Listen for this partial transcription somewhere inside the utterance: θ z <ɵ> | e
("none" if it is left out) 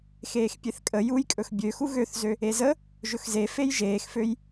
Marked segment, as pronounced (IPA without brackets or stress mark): ø